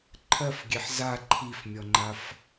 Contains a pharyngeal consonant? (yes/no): yes